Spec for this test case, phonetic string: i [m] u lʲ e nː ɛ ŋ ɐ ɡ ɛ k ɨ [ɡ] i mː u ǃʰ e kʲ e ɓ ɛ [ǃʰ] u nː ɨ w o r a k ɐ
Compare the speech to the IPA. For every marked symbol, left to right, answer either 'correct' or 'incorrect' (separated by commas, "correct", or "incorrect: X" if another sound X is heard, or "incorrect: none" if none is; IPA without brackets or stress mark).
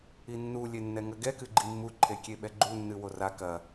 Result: incorrect: nː, incorrect: ɡ͡ǃ, incorrect: ɡ͡ǃ